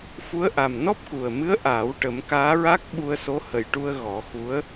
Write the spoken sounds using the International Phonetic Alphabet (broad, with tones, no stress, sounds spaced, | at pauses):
f u˧˥ ə̯ ʔ a˨˩ m n ɔ˦˥ p̚ k u˨˩ ə̯ m ɨ˧˥ ə̯ ʔ aː˨˩˦ w ʈ ə˨˩˦ m k aː˧˥ ɹ a˦˥ k̚ ɓ u˧ ə̯ s o˧˥ h ə˨˩ j ʈ u˧ ə̯ ɣ ɔ˨˩˦ x u˧˥ ə̯